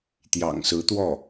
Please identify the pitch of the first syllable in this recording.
low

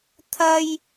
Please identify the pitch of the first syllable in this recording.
high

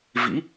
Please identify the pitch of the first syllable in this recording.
rising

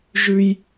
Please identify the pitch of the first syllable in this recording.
high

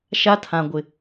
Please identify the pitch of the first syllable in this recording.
high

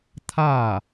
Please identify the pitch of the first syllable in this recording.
falling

